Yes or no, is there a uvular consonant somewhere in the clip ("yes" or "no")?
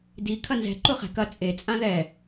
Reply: yes